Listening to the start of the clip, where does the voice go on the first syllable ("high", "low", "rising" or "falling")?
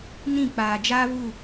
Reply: falling